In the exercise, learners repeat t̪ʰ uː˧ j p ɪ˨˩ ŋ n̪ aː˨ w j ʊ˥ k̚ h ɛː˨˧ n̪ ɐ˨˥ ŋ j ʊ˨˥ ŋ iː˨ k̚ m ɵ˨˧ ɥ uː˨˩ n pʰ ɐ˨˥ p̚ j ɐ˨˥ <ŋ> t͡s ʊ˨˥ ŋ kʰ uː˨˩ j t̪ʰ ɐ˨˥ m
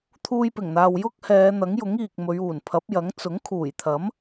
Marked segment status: correct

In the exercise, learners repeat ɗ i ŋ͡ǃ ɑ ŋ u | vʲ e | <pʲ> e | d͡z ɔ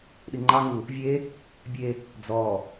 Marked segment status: incorrect: bʲ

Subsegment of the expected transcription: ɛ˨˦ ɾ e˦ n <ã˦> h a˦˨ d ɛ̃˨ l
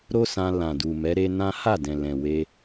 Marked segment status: correct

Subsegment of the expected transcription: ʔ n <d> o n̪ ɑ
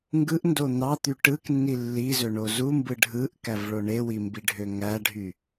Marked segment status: correct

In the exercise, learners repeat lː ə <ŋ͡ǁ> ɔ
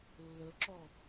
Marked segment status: incorrect: ǁ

